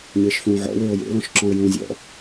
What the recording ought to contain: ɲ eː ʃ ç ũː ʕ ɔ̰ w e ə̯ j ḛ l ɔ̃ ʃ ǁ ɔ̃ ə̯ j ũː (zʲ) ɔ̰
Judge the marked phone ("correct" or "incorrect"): correct